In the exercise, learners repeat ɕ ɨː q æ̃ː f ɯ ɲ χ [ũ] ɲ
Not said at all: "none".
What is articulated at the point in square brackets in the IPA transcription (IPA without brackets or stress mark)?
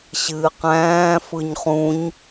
ũ